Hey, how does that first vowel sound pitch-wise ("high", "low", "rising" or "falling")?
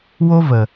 high